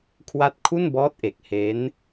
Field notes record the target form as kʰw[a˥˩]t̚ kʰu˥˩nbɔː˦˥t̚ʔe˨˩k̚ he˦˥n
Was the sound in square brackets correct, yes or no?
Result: yes